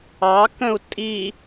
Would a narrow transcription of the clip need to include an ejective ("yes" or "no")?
yes